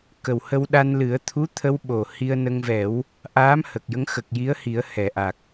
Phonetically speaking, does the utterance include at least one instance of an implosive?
yes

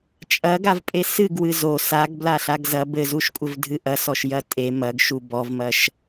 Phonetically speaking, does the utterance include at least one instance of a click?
no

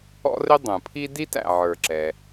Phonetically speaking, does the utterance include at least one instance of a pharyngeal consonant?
yes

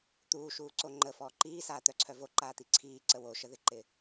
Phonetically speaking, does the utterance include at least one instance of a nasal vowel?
no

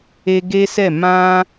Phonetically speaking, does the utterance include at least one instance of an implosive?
no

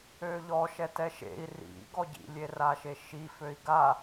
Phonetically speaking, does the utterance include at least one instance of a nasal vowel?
no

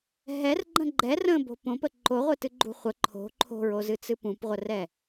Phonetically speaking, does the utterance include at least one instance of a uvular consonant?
yes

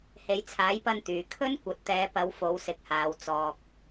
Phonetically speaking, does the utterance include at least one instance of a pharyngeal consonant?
no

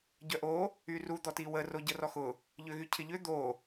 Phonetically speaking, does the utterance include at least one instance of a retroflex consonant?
no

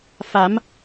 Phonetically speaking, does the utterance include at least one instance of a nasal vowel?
no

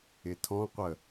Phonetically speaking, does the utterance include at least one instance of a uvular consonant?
yes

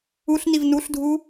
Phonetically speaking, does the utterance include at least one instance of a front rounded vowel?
no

